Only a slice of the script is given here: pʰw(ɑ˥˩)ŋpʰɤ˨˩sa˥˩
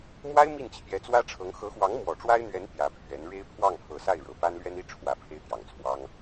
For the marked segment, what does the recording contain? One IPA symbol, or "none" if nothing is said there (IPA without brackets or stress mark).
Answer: ɑ˥˩